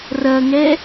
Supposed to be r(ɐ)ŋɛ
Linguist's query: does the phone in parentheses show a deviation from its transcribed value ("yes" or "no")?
no